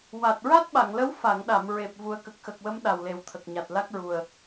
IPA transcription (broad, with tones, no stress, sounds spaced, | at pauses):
w a˨˩ t̚ ɹ a˦˥ t̚ ɓ a˨˩˨ ŋ l ə˧˥ w f a˨˩˨ ŋ ɗ a˨˩˨ m ɹ e˨˩ p̚ v u˨˩ ə̯ k ə˨˩ k̚ x ə˨˩ k̚ w ə˧˥ m ɗ a˨˩ w l e˨˩ w t̪ʰ ə˨˩ k̚ ɲ a˨˩ t̚ l a˦˥ k̚ ɹ u˨˩ ə̯